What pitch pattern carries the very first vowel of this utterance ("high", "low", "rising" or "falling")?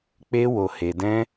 high